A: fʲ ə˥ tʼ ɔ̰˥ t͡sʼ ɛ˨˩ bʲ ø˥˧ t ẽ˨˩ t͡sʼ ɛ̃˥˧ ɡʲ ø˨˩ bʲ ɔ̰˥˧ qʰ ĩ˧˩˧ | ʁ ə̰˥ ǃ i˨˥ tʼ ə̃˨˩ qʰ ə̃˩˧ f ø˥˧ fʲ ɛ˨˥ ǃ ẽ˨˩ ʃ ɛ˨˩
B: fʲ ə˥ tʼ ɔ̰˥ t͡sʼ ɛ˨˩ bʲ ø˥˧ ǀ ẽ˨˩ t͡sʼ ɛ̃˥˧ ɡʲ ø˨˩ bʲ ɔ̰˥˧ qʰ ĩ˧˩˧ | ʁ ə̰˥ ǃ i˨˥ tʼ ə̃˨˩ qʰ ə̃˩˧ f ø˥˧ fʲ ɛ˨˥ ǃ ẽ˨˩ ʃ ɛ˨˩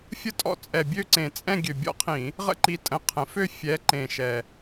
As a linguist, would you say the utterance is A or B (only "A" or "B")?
B